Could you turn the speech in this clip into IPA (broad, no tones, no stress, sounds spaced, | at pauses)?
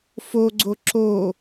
f o ɡ͡ǀ o ǁ o